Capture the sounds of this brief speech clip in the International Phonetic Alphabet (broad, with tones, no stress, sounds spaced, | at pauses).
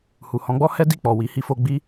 h u˨ h ɔ̃˨˦ ɡ͡b ɔ˦ h ɛ˦ d i˦˨ k͡p ɔ˨ w i˨˦ h i˧ f o˧ ɡ͡b i˦